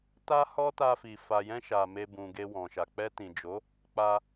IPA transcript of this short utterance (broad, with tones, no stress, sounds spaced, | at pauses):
t a˦ h ɔ˦ t a˧ f i˨ f a˨ j ɛ̃˧ ʃ a˨ m e˧ b ũ˨ ɡ e˧ w ɔ̃˨ ʃ a˨ k͡p ɛ˧ t ĩ˨ d͡ʒ o˨˦ | k͡p a˧